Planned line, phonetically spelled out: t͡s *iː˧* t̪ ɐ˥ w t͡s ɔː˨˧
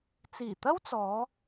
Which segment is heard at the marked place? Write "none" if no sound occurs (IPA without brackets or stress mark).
iː˨˩